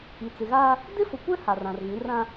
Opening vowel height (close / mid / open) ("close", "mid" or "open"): close